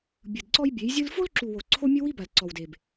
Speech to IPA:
bʲ ɯ˨ d ǀ ɔ˦ j bʲ e˨˦ j zʲ ɯ˦ l f o˦ l ǁ u˨ w o˨ ǀʰ o˦ mʲ ɯ˦ w i˦ b a˨ l ǀ ɔ˨ w d e˨ b

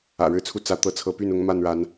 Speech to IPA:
ä̰˨˩ ɻ ɻ̩˥˨ t͡sʰ u˦ t͡s ä˨˦ t̪ ɤ˨˦ t͡sʰ ɤ˨˦ p y˥˨ n ʊ˨˦ ŋ m a˥˨ n ɻ a˨˦ n

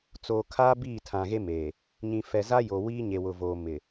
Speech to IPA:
t͡s oː˨ kʰ a˦ b iː˦˨ tʰ ã˨ ɣ e˦ m eː˨ | ɲ ĩ˨ f ɛ˨ z aː˦ j oː˨ w iː˦ ɲ e˨ w ʊ˨ v oː˨ m ɪ˨

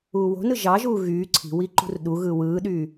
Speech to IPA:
uː w o̤ n ɯ ʒ ɑ ʒ uː ɣ yː ǀʰ i̤ w i ǃ ṳ r ɗ u ɣ ɯː w ɯː ɗ yː

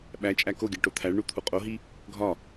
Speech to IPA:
ɓ æ t͡ʃʼ æ k o ɡʲ æ ʈ o t̪ʰ æ ɭ ɳ u t̪ʰ u qʼ o ɦ i | ɡʱ ɒ

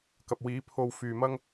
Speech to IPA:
k ɐ˨ p̚ w iː˨˥ pʰ o˧ w f yː˨ m ɐ˥ ŋ

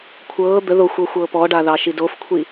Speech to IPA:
kʷʰ ɤː d̪ ə ð o xʷ ɤ xʷ ɤː p ɔ ɖ a ð ɑ ʃ i d oː f kʷʰ i

